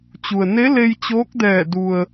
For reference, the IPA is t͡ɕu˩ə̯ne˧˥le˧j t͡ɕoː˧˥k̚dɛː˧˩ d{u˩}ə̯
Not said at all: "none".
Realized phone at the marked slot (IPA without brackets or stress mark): u˩